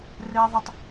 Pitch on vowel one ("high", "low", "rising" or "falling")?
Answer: high